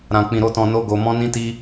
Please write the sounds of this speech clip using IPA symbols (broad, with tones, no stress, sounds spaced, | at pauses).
ɾ ã˧ k͡p ĩ˧ ɾ o˦ t ɔ̃˧ n o˦ ɡ o˧ m ɔ̃˦ n ĩ˦ t i˦